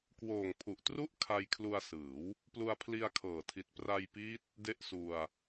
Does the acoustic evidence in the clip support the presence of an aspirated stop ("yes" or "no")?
yes